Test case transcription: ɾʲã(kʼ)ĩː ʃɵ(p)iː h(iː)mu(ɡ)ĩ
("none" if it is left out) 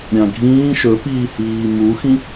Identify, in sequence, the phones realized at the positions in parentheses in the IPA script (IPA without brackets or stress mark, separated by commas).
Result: ɡʱ, p, iː, x